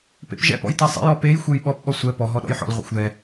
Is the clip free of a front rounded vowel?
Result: yes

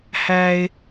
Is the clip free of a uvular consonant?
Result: yes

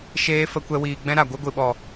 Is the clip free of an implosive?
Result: no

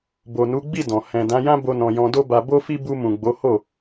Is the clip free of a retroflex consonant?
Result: yes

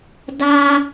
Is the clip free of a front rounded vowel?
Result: yes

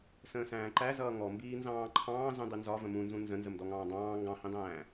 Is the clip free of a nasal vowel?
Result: no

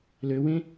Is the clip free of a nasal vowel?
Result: no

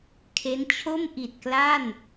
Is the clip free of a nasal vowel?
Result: yes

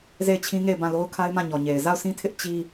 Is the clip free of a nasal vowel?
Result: no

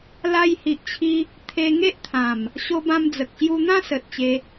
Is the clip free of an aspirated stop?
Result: no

